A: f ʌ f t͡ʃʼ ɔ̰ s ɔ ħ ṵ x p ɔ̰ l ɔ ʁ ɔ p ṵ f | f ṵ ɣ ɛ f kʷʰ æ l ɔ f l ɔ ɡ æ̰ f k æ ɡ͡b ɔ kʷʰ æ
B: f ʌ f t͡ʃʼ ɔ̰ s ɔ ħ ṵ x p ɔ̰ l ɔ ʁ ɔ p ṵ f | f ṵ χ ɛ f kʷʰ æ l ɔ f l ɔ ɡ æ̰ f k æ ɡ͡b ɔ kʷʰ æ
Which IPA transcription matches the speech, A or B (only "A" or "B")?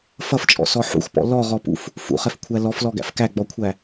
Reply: B